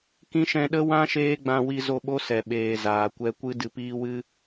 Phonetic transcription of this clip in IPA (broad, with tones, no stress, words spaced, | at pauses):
kĩ˧ʃɛ̃˧ɗə˦ wã˦ ʃeː˦ɡ͡bã˧wi˧ zo˧ɓo˦sɛ˨ ɓeː˨ zaː˨kʷɛ˧kʷɨ˦ dɨ˧piː˦wɨ˦